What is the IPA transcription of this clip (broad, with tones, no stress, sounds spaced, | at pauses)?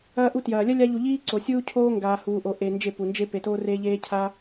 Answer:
ɐː˧ ʔ u˧ t j ɐː˨ lʲ ɐ˦ lʲ a˧ ʎ u˨ ʎ iː˦ ǀ o˨ sʲ uː˧ cʰ oː˧ ŋ ɡ aː˨ h uː˨ ʔ o˨ ʔ e˨ n d͡ʒ e˦˨ p u˨ n d͡ʒ e˦ p e˨ t oː˦ r eː˧ ʎ eː˦ cʰ a˦